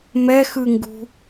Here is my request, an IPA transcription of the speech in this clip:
m ɛ x ɯ ŋ ɡ ṳ

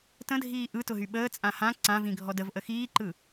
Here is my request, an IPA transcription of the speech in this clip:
t ə̃ dʱ iː ʔ ɯ t ʊ ɦ y ɓ əː t͡sʼ ã h ã ǀ ã v ĩ ɡʱ ɔ d ə v ʔ ə x iː ǃ ɯ

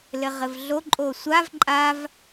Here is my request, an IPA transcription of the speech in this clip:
l ɘ ʁ ɘ v ɮ o ǃʼ o sʷ a v ǃʼ a v

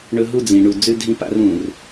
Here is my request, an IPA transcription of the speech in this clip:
ɳ ɵ˦ ɦ u˦˨ d͡z ĩ˨ ɳ u˨ d͡z ʉ˦ dʱ ĩ˦ p a̰˦ r ũ˨ r

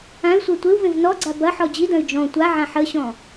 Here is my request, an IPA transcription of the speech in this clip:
ã y̯ sʷ e tʷ ɪ u̯ v ẽ v n ɔ ɡ͡ǀ a b ɐ ħ ɔ d͡ʑ i d ɐ̃ y̯ d͡ʒ ɔ̃ tʷ a ʕ ã ħ ə ɕ ɔ̃

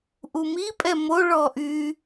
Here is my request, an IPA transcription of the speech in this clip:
ʔ u m i pʼ ɛ m o ɭ ɔ ʔ y

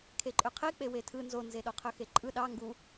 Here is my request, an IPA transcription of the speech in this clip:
kʰ e ǃʼ ø qʰ e k͡p e w e tʰ ɯ n z o n z e ɗ o qʰ ø x e ǃʼ ɯ ɗ ɑ ŋ ɡ u

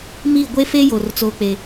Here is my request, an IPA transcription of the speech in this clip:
m iː˦˨ ɡʷ e˦ f e˦ j o˨ r t͡s o˦ k͡p e˦

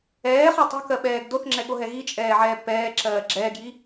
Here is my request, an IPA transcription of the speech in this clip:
ɛː χ o tˤ o̤ k ɜ ɓ ɛː ɡ d o θ ŋ͡ǁ ɛ ɠ o ɦ ɛ ɣ i t͡ʃʼ ɛː ʕ ɛː b p ɛː ǁ ɜː ɡ͡ǁ ɛː ɡ j i

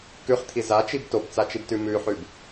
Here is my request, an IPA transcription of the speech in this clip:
k ʉ χ t̪ʰ i z a t͡ʃ i b t o b t͡s a t͡ʃ i b t ʉ m ʉ ħ ʉ b

